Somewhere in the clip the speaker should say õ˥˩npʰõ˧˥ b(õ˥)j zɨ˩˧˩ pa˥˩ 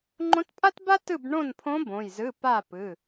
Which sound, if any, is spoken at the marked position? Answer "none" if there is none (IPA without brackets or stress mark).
õ˩˧˩